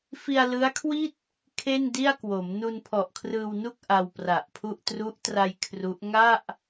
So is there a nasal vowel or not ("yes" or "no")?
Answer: no